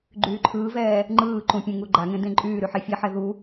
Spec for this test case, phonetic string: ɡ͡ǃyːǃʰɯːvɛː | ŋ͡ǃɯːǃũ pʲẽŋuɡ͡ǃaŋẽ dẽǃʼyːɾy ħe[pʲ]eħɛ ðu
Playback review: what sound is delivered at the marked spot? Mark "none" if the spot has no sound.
fʲ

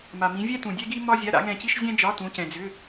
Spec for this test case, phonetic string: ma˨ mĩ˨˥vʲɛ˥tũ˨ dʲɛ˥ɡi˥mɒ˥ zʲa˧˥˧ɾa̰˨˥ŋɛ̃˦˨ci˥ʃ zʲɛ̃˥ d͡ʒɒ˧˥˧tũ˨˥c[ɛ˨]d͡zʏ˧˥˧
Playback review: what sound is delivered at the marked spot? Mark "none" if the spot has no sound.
ɛ̃˨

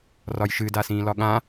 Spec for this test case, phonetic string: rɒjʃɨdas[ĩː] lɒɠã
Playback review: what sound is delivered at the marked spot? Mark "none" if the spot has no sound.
ĩː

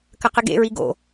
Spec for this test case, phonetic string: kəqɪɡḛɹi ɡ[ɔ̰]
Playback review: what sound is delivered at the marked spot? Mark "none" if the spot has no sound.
o̰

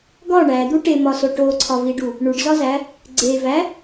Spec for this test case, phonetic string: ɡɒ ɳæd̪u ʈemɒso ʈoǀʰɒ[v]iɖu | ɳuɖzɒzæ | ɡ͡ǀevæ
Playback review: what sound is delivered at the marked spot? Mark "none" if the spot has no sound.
v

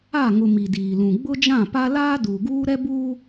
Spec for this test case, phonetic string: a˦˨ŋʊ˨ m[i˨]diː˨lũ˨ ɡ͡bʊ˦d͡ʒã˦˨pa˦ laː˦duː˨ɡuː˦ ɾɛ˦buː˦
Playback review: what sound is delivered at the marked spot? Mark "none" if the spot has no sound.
i˨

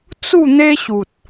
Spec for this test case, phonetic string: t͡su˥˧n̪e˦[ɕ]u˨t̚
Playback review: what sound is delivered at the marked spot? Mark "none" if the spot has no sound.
ɕ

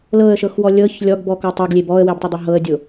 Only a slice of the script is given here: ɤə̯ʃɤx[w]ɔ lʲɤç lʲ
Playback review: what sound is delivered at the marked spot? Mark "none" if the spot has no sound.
w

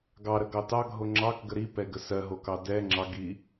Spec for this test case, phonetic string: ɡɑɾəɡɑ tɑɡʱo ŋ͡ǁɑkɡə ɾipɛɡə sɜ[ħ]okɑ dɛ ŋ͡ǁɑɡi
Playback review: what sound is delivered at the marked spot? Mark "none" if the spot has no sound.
ɦ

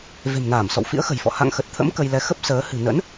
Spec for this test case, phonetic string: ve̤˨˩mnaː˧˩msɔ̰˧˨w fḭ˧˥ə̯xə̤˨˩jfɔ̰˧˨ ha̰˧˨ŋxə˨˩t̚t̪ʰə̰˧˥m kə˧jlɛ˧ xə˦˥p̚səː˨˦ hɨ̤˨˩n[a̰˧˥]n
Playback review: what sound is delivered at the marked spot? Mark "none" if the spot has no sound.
ə̰˧˥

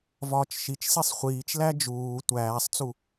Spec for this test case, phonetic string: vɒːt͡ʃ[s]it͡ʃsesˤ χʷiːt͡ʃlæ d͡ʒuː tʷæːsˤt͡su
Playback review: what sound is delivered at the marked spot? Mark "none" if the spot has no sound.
ʃ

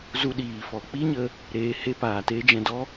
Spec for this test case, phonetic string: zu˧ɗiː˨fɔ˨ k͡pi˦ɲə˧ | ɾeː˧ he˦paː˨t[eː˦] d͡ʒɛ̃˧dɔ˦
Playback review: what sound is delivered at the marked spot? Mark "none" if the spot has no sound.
e˦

